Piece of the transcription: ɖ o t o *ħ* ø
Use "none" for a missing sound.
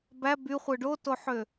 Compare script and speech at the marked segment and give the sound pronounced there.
ħ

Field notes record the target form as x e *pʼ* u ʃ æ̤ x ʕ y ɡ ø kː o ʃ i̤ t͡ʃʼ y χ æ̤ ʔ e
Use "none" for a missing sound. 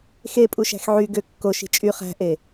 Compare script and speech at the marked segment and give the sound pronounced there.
pʼ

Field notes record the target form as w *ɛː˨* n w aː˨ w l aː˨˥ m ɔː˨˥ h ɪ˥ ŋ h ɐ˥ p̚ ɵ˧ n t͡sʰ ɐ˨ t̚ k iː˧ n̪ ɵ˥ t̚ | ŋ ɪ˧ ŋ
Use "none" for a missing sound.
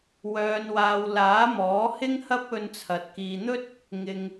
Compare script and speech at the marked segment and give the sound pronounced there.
œː˨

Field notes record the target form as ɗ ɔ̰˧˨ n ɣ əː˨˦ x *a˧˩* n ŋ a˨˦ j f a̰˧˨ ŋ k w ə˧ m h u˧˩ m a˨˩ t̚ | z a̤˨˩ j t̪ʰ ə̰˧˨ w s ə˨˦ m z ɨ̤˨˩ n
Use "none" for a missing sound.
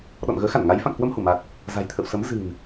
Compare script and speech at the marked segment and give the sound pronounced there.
a˧˩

